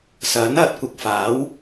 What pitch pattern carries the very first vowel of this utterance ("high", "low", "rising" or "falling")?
rising